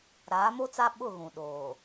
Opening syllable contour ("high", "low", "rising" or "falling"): rising